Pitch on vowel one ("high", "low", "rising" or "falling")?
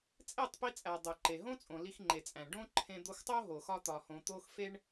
falling